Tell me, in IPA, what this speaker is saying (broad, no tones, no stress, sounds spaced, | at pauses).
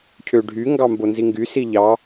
cʰ ø ɖʱ y ŋ ɡ ɑ m b o n z i ŋ ɡ y s i ʎ ɑ